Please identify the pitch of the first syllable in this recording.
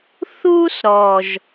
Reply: high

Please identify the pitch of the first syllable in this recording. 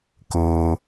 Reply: high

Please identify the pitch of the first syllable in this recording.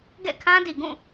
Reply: falling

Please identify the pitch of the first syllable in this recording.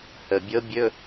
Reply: low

